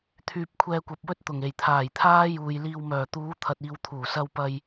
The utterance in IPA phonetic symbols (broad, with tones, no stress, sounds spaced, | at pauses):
t̪ʰ yː˧ p̚ kʷʰ ɛː˧ kʷ ɐ˨ p̚ w ɵ˥ t̚ t̪ ʊ˨˩ ŋ e˨˩ j t̪ʰ aː˨˩ j t̪ʰ aː˥ j uː˨ j l iː˧ w m œː˨˩ t̪ uː˨˧ t̪ʰ ɐ˨ t̚ iː˨ w t̪ʰ uː˨˩ s ɐ˧ w p ɐ˧ j